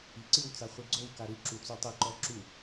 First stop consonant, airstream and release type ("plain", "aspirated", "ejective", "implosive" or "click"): click